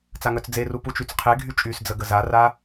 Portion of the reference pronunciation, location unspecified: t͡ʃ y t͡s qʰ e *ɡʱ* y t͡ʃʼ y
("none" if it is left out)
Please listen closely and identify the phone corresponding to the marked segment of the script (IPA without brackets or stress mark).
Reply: ɡʱ